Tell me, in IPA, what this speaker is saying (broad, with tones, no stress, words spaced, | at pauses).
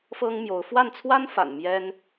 fɤ˥ŋmjo˧˥ʊ̯ fwa˥˩nt͡sʰwa˥nfa̰˨˩n mjɛ˥n